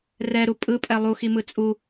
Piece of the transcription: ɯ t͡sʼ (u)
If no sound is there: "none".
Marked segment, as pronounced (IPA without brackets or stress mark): u